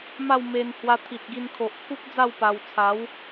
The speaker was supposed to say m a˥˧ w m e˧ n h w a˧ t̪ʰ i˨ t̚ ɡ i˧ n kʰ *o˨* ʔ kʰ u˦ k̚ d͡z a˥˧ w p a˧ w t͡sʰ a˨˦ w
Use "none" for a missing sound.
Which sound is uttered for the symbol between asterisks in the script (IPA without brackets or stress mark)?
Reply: o˨